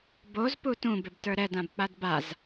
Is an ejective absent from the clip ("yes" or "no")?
yes